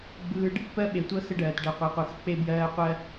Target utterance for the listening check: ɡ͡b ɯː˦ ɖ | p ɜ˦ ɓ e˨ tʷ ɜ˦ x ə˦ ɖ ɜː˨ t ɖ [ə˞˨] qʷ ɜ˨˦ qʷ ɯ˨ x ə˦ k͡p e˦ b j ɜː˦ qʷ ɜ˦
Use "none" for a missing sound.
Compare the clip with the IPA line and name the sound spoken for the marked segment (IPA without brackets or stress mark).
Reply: ɜ˨